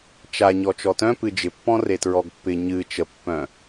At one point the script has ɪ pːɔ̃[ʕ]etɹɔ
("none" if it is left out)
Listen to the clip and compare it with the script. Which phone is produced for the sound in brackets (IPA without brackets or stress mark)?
r